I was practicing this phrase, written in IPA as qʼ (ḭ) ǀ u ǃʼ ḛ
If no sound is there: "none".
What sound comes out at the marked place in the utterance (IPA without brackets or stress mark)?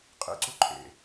ḭ